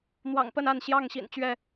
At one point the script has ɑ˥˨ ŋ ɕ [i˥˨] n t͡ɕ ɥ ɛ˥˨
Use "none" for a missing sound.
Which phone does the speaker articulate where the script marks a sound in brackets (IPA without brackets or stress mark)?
ḭ˨˩